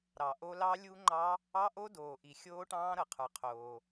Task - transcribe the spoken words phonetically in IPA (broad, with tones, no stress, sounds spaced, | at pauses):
ɾ ɑ˩ ʔ o˦˥ l ɑ˦˥ lʲ u˦˥ ŋ͡ǃ ɑ˦˥ | ɑ˦˥ ʔ o˦˥ d oː˩ ʔ i˩ xʲ oː˦˥ ʈ ɑ̃ː˦˥ ɾ ɤ˩ qʰ ə˞˩ qʰ oː˩